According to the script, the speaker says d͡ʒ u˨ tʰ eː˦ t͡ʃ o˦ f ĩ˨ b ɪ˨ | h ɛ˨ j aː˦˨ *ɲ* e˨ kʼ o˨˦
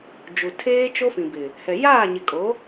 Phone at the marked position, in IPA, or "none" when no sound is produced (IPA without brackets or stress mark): ɲ